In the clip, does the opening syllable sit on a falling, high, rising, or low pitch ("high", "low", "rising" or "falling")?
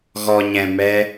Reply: low